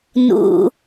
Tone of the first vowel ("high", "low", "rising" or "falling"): high